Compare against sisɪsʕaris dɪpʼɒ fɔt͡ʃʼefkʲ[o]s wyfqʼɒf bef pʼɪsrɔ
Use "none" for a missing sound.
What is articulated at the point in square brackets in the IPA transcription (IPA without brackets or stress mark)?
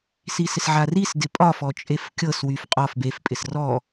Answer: ɤ